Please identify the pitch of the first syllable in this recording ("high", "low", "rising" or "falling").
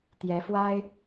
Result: rising